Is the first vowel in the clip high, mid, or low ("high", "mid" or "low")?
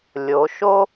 mid